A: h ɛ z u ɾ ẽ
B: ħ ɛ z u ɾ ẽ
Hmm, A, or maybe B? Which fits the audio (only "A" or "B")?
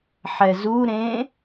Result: B